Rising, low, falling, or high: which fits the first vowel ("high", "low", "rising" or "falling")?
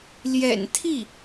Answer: low